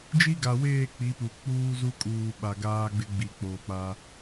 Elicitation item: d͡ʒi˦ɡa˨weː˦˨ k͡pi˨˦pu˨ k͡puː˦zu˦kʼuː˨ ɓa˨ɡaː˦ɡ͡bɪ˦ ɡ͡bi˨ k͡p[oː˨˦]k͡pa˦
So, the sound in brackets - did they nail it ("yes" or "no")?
no